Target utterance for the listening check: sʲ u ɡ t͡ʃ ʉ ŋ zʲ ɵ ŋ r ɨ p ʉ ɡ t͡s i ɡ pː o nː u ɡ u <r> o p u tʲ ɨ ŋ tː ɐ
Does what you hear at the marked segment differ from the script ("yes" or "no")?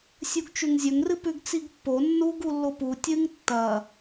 yes